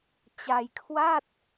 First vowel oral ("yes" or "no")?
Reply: yes